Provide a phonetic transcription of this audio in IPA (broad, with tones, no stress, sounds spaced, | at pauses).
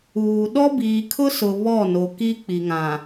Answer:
uː˨ ɗ ɔ˦ b iː˨ kʰ ʊ˦ s ʊ˨ β ɔ˦˨ n o˨ k i˦ k͡p i˨ ŋ ã˨